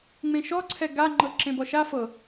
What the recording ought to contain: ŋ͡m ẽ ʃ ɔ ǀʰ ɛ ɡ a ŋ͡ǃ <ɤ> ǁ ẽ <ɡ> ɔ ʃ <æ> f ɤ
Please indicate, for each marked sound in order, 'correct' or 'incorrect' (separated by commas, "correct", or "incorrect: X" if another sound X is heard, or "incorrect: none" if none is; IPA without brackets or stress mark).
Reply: correct, incorrect: b, incorrect: a